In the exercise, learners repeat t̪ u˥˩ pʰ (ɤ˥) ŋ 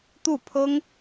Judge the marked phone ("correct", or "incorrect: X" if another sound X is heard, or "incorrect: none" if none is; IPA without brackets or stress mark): correct